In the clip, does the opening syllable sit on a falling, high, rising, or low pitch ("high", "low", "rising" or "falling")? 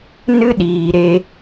high